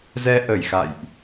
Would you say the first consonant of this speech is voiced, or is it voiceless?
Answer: voiced